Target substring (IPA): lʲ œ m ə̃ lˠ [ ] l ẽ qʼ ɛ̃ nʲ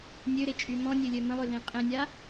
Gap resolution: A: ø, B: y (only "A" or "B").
A